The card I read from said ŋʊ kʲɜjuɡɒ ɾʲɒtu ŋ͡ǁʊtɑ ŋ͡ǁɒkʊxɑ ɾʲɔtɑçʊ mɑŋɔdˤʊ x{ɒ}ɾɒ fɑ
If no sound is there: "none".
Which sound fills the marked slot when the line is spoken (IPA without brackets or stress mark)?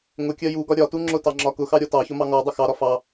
ɑ